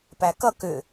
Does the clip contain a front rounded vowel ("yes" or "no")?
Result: yes